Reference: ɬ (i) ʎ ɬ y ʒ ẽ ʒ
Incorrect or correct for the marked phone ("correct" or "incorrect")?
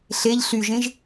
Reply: incorrect